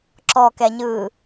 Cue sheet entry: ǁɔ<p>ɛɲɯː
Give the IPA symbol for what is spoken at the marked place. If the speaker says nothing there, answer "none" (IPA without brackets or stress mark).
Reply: k